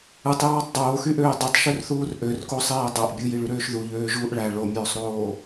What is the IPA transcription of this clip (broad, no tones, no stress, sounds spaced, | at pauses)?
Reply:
ɯ tˤ j ɑː tˤ dˤ oː x y ʔ øː dˤ i tˤ ʃ ø r θ uː r ʔ ø r k o sˤ eː dˤ o ʔ bʲ ɯ j i ɭ y ɾ øː ʃ ð u ʎ øː ʒ uː ʔ ɭ æ ɭ o mʲ øː sˤ ɾ oː